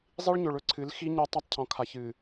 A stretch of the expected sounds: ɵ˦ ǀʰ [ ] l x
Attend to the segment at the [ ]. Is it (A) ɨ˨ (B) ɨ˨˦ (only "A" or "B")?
B